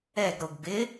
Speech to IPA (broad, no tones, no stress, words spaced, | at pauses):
ɛɡɾoɡ bɪ